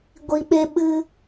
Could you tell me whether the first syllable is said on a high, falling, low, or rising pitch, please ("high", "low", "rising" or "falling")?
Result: low